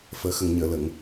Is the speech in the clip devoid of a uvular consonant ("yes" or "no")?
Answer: yes